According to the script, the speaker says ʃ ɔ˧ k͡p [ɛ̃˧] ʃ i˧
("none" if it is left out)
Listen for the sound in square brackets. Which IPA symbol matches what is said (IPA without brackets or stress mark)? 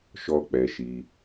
ɛ˧